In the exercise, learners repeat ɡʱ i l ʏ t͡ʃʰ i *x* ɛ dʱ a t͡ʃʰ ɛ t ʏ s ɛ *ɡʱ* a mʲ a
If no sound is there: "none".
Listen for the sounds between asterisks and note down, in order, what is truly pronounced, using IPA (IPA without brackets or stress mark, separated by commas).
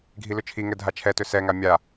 ŋ, ŋ